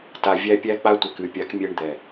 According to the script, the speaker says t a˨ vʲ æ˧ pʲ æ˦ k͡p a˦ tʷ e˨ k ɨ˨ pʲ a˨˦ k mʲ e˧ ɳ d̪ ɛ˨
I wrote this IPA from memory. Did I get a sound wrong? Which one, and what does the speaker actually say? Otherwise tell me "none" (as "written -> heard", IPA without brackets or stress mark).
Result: none